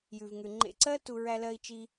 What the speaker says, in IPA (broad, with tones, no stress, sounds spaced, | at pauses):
j ʉ˨ v ŋ ʉ˨ ŋ͡ǃ ḛ˦˨ ǀ ɜ˦ t u˧ ɹ æ˧ l ɜ˧ i̯ t͡ʃ i˧